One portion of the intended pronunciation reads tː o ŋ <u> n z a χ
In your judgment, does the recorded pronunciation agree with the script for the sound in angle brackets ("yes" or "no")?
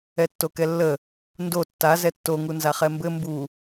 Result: yes